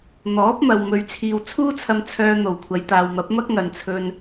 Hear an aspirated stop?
yes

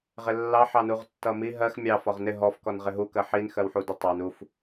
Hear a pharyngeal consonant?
yes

